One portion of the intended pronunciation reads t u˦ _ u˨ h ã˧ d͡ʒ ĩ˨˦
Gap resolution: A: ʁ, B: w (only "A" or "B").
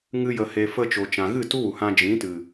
B